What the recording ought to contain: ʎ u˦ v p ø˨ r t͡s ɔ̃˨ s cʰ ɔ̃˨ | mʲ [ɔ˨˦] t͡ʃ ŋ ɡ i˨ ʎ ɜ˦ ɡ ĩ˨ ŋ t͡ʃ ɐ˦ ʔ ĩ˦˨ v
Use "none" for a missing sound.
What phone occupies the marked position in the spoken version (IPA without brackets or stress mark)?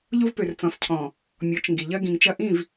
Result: ɔ˨˦